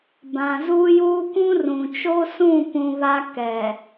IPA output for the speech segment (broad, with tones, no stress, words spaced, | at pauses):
bã˨zuː˦juː˦ kʷũ˦rũ˨t͡ʃo˦ sũ˦˨pũ˨ βa˦ kɛ˨